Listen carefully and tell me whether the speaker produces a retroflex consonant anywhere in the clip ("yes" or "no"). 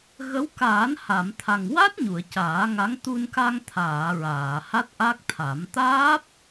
no